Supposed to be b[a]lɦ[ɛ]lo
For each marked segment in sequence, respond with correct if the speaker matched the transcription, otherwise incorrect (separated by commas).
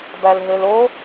incorrect, incorrect